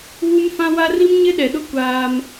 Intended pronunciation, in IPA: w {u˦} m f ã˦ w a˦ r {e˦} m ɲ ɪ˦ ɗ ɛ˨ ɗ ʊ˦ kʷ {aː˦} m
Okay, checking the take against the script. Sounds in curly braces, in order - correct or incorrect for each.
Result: correct, incorrect: i˦, correct

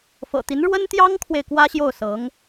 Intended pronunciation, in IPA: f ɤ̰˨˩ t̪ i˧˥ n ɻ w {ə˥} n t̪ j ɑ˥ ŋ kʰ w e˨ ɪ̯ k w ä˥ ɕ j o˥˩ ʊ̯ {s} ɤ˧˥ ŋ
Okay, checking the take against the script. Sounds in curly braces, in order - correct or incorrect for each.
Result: correct, correct

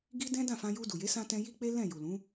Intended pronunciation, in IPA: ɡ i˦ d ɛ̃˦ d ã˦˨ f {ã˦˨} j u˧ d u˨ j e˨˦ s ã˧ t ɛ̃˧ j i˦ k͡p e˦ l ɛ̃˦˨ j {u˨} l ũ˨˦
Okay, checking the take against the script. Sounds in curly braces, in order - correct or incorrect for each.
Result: incorrect: ã˧, correct

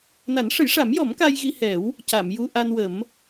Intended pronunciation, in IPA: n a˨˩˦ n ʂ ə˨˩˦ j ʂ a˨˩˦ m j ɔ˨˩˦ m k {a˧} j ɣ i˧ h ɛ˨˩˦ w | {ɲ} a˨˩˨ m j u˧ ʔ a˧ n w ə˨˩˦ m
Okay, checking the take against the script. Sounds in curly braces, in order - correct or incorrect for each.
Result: correct, incorrect: c

